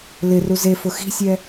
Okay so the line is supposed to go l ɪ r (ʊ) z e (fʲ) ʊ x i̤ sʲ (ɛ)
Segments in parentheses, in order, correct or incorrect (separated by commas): incorrect, incorrect, correct